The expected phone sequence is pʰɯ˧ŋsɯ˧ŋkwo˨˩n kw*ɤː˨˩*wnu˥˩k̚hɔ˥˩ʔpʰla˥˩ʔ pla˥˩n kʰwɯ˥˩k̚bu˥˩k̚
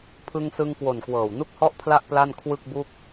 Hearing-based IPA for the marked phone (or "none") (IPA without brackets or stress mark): ɤː˨˩